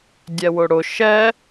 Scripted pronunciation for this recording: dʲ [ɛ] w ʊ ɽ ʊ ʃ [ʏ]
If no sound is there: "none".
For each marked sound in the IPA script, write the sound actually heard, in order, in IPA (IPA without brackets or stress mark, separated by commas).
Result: ɛ, ɛ